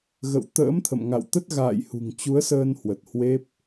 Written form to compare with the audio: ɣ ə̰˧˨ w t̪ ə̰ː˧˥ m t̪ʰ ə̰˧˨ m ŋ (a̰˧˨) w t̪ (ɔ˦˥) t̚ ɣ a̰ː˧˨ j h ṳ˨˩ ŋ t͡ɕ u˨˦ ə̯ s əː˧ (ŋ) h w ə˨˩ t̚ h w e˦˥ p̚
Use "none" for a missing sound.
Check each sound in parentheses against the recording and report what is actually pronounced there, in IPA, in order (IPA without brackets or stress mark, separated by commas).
a̰˧˨, ə˦˥, n